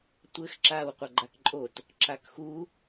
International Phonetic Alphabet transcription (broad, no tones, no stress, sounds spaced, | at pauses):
tʷ ɘ x ǁ aː w qʷ ɐ ɡ͡ǃ a k ǃʼ o t | ǁ a k x u